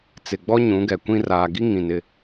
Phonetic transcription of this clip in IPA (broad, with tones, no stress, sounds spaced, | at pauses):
t͡s ɪ˨ ɡ͡b ɔ˦ ɲ ũ˨˦ ɡ ɛ˨ kʷ ĩ˨ r aː˨ ɡ i˦ ŋ ĩ˨ n ɪ˦˨